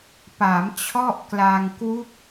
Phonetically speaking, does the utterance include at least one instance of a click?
no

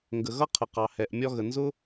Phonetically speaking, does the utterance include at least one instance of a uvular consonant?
yes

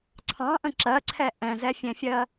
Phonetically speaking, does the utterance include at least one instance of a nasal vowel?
yes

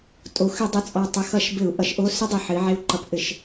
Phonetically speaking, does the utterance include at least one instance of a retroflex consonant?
no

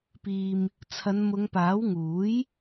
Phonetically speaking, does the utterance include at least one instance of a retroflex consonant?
no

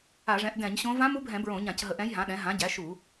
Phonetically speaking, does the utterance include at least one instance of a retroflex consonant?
yes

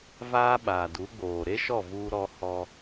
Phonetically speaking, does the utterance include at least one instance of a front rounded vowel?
no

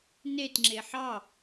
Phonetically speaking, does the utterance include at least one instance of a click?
yes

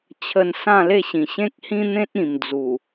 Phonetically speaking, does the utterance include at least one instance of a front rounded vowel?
no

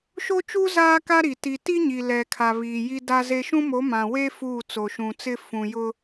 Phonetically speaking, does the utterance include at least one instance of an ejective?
no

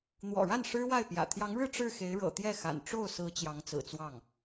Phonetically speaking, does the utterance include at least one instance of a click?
no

